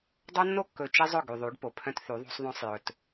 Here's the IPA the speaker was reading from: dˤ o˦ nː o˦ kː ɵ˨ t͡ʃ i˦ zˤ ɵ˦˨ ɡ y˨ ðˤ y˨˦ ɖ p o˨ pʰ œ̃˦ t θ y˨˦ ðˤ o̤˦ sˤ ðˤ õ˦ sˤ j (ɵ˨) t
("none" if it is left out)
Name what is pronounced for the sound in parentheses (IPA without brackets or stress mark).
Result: ɵ˨